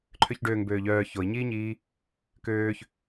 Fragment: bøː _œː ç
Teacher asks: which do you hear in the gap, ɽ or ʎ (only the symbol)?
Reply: ʎ